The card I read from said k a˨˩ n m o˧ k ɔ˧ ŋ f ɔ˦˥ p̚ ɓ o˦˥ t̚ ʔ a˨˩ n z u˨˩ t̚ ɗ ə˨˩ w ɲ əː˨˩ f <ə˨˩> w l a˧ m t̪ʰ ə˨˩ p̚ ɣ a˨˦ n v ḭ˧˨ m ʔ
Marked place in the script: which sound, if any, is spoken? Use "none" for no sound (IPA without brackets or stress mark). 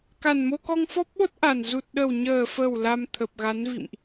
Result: ə˨˩